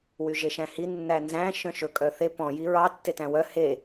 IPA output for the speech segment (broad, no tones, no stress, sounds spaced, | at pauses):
w y ʒ e ʃ æ̃ h i nː æ n z æ̃ ʃ œ̃ ʃ ɵ kʼ œ θ e p ɔ̃ j i ɹ ɑ tː e t æ̃ w œ h e